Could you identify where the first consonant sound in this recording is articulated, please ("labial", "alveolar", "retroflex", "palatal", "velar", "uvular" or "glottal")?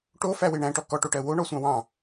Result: retroflex